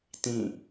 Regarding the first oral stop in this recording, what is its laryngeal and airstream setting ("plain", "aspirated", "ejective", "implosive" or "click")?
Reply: plain